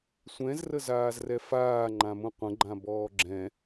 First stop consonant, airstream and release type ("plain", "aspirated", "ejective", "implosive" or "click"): click